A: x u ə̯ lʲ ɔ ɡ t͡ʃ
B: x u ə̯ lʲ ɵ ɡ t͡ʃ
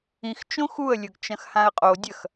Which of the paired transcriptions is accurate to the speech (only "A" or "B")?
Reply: B